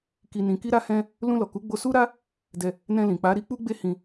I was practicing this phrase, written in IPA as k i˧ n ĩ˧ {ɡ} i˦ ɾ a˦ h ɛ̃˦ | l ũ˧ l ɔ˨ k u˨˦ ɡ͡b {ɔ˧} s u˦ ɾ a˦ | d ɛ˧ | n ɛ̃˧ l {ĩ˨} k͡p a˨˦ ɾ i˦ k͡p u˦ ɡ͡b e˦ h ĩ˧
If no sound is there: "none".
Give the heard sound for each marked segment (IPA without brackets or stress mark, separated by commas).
k, o˧, ĩ˨